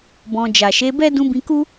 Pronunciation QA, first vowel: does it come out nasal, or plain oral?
nasal